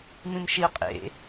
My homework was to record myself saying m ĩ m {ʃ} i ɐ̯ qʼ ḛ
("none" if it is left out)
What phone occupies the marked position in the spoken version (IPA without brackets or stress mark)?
ʃ